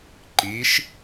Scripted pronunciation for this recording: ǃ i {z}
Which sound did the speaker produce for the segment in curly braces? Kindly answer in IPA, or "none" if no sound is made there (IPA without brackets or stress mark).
ʃ